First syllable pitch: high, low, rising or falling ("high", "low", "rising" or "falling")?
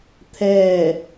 falling